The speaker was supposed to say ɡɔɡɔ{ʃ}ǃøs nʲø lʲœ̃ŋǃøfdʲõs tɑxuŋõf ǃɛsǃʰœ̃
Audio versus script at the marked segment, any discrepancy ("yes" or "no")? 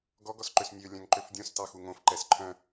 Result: yes